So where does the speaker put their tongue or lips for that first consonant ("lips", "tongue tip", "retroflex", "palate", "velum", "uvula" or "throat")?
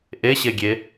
throat